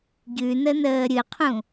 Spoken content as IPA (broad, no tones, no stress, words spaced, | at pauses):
ɟʉnə nəːɾʲɨqʰũ